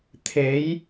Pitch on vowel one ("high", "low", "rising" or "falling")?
rising